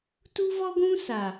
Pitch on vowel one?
high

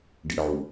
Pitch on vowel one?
low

